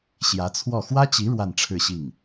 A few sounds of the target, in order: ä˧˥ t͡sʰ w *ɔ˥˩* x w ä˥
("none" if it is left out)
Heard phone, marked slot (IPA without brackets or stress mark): ɔ˥˩